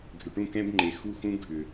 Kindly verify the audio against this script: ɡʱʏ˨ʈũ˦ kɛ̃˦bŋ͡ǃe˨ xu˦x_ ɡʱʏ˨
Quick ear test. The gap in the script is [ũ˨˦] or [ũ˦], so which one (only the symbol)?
ũ˦